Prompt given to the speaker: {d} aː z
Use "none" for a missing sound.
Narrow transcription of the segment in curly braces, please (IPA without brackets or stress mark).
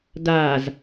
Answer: d